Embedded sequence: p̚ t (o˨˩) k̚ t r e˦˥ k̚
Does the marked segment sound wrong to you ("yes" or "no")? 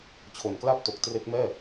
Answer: no